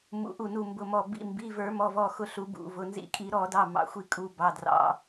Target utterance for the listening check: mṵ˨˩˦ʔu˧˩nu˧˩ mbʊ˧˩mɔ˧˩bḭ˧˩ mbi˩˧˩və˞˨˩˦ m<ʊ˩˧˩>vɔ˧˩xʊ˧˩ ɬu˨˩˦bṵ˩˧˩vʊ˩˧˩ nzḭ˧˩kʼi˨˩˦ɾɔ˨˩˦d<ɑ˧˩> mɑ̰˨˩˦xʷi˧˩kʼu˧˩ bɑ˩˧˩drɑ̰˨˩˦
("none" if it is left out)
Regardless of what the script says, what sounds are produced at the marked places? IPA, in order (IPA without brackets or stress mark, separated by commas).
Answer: ɔ˩˧˩, ɑ˩˧˩